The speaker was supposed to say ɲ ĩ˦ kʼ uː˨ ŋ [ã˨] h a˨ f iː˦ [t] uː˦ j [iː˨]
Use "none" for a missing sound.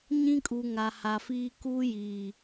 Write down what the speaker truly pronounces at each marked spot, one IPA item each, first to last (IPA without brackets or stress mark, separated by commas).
a˨, k, iː˨